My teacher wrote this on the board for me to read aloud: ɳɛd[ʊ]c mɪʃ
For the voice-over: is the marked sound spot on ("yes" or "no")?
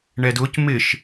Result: yes